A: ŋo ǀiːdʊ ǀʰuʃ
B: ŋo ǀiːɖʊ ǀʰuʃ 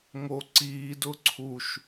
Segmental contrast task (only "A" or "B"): A